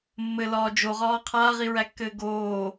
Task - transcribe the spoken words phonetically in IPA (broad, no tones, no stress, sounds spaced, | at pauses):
mː ɘ l ɒː d͡ʒ o ʁ ɒː qʰ aː ʁ i ɹ æ kː ɘː ɡ oː